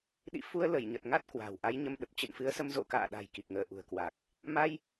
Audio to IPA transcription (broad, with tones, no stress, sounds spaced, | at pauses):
ɗ ḭ˧˨ f u˧ ə̯ l ə˧˩ j ɲ ə˨˩ t̚ ŋ a˦˥ t̚ k w a̤˨˩ w ʔ a˨˦ j ɲ ə˧ m ɗ ə˨˩ p̚ t͡ɕ ɨ̰˧˨ n f ɨ˨˦ ə̯ s ə˧ m z o̰˧˨ k a̰ː˧˨ ɗ a̤˨˩ j k i˨˩ k̚ ŋ əː˧˩ ʔ ṳ˨˩ ə̯ k w a˨˩ k̚ | m a˧ j